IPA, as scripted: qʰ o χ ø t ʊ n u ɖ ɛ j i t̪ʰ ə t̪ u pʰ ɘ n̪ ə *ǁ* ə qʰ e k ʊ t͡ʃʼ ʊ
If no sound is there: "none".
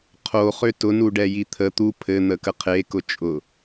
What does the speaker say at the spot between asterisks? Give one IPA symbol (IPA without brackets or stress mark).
k